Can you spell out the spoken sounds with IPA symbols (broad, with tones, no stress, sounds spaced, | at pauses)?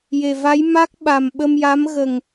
j e˨˩ v a˧˥ j m a˦˥ k̚ ɓ a˨˩ m ɓ ə˧ m j a˧˥ m ɣ ə˨˩ ŋ